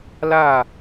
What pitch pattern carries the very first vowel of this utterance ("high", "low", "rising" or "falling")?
falling